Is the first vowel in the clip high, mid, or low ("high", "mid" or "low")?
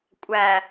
low